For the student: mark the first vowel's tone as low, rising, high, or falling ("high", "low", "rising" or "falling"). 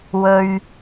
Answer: high